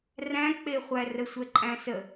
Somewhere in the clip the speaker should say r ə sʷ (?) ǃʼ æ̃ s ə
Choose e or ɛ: ɛ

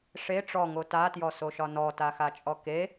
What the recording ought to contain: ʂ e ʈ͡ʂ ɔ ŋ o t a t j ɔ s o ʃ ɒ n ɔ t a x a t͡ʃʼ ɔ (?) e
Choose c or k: k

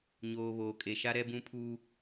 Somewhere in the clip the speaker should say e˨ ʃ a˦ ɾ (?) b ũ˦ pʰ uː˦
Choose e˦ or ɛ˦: ɛ˦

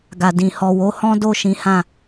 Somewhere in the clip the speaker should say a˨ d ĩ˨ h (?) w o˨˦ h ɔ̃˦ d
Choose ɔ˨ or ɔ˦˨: ɔ˨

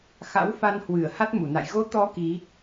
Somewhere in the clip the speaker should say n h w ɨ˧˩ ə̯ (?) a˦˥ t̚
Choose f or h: h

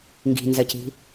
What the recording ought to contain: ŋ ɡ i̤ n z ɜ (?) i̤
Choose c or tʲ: c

